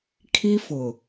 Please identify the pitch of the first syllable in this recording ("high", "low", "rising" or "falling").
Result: high